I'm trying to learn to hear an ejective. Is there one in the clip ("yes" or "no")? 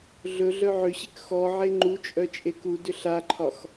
yes